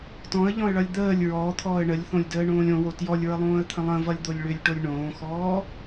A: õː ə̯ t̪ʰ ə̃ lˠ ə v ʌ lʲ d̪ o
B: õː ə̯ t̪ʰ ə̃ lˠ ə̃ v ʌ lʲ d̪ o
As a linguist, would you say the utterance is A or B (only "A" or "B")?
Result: B